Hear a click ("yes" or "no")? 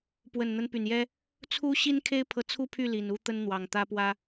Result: no